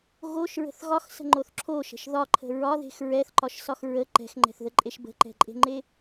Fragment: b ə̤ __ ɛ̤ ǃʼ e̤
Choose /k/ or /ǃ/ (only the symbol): ǃ